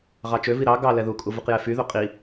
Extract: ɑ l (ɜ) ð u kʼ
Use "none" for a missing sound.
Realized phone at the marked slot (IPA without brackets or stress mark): ɛ